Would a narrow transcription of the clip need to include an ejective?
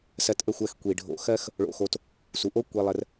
no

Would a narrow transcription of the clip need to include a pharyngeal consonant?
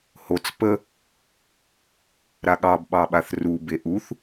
no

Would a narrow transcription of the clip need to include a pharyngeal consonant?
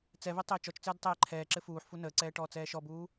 yes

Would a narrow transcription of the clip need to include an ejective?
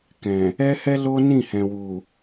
no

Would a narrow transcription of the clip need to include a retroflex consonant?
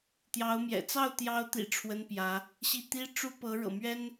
yes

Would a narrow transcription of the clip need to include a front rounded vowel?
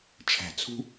no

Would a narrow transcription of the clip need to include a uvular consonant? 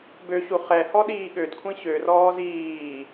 yes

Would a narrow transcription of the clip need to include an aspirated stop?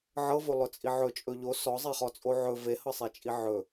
no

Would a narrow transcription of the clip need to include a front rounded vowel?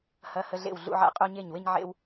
no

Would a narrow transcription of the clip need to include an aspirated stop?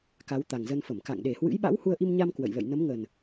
no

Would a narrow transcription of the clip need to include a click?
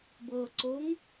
yes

